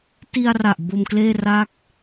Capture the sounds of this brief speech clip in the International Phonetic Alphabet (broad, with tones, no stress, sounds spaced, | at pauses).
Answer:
t i˧ a̯ r a˨˩ ʔ b o˧ m k l eː˥˩ r a˥˩ k̚